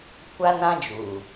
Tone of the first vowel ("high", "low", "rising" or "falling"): high